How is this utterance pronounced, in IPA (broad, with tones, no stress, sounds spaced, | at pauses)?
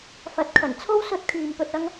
f ɐ˧ t̚ kʰ ɐ˨˩ n t͡sʰ o˥ w s ɵ˧ t̚ kʰ yː˨ m p ɵ˧ t̚ ɐ˥ ŋ